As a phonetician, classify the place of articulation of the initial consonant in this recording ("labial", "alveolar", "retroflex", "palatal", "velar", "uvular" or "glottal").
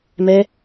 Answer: labial